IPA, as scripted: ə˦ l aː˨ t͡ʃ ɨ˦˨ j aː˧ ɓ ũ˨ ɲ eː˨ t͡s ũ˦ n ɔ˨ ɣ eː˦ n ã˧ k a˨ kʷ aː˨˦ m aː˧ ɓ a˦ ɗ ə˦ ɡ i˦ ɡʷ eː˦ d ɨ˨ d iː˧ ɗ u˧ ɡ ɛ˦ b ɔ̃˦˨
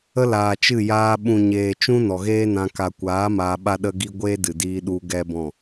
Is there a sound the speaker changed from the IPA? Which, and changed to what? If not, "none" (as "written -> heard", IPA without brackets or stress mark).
t͡s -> t͡ʃ